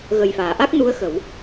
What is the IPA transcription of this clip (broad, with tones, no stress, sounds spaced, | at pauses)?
ɣ ə˨˩ j f aː˨˩˨ ʔ a˦˥ k̚ n u˧˥ ə̯ x ə˨˩˦ w